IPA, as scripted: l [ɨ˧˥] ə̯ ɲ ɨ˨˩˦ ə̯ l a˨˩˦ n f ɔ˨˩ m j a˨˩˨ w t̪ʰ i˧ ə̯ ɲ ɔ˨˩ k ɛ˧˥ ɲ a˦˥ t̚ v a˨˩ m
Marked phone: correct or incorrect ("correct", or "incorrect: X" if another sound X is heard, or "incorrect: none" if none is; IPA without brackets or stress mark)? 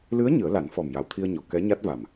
correct